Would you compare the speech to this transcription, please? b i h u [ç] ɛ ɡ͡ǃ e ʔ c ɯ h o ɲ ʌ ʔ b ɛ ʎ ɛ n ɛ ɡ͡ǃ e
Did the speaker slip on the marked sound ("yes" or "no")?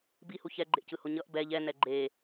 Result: no